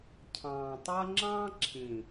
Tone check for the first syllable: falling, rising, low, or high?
low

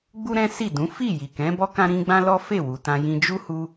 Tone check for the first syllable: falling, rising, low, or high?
high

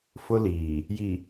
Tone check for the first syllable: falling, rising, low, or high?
high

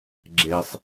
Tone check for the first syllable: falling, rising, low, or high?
low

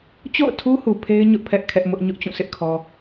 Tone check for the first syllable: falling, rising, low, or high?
falling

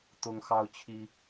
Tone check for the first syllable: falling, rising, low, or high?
high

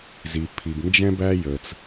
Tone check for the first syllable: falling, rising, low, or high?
low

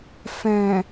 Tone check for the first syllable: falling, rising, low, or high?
low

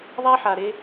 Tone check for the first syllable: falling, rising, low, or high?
high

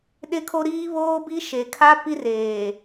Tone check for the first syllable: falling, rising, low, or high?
high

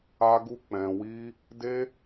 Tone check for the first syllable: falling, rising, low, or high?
high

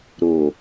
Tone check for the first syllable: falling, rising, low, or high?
low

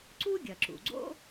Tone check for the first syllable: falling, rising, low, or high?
high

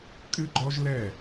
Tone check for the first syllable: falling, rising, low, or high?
high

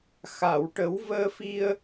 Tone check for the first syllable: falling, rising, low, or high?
low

